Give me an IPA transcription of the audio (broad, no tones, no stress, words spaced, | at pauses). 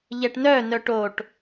ʎɛʈnœ nœʈoʈ